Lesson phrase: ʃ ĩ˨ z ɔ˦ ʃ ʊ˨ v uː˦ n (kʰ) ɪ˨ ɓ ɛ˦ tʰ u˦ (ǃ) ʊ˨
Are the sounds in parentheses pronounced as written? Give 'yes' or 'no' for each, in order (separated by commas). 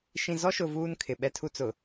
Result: yes, no